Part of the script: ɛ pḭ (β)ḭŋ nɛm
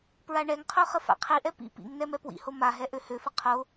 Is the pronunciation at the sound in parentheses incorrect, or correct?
incorrect